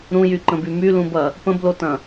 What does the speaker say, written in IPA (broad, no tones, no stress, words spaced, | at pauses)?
ɾũjyǃə̃by mylũbɐ | pə̃blotɐ̃